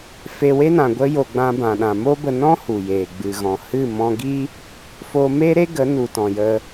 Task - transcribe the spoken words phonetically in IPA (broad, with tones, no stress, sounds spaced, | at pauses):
f e˧ w e˦ n ã˨ ɡʷ ə˧ j o˨ ɡ͡b ã˧ b ã˨ ɗ ã˨ m o˦ b ə˧ n ɔ̃˦ h u˨ j eː˨ ɡ͡b ɨ˨ ɣ ɔ̃˨ h ɨ˦˨ m ɔ̃˧ ɡ i˦ | f o˧ m e˦ ɾ e˦ ɡ ə˨˦ n u˨ t ɔ̃˨ j ə˧